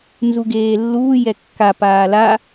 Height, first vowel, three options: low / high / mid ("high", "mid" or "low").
high